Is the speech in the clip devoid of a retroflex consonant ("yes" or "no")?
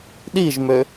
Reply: yes